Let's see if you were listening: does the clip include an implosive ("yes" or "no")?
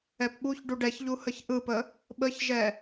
yes